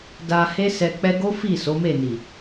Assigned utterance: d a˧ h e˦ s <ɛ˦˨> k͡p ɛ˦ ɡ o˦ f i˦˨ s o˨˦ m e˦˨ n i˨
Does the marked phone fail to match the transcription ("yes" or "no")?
yes